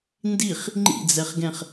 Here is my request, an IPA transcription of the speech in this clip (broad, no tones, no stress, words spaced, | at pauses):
ndiχ | ŋ͡ǃḭd͡zɛχɡɛ̃χ